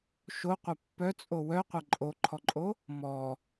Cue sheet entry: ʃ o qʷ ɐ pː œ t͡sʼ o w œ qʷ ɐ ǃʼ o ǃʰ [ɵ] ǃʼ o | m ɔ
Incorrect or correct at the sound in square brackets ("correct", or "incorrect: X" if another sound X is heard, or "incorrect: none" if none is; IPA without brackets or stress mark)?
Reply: incorrect: ɔ